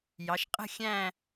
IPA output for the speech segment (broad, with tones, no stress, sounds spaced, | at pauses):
j ɑ˩˧ ʃ qʼ ə̤˥˧ xʲ æ̃˥˧